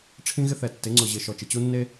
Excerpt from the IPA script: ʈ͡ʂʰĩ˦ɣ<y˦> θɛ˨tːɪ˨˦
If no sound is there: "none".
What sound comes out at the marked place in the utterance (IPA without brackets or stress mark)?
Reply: ɪ˦